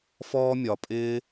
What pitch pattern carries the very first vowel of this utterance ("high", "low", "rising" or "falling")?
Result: high